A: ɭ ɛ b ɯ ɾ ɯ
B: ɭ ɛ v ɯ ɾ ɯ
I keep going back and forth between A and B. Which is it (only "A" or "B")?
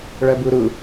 A